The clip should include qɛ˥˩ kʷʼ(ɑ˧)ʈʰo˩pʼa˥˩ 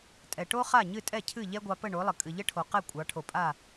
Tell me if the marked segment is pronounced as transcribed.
no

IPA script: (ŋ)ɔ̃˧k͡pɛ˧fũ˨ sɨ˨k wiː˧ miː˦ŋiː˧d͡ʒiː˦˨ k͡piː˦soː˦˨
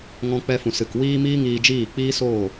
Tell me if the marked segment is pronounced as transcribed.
yes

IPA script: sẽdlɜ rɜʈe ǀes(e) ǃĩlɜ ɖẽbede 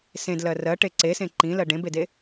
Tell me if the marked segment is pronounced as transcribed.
no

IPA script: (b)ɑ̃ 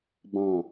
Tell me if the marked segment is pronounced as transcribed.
yes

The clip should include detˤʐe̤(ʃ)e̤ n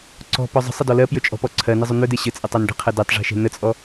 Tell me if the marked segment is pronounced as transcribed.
yes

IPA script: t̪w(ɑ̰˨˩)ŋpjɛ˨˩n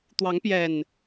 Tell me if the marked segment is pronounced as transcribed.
no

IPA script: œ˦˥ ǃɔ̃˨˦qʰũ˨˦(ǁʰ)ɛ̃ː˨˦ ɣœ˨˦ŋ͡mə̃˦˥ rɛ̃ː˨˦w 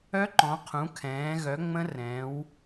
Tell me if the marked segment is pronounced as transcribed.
no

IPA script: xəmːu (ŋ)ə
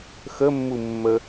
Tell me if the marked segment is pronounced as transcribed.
no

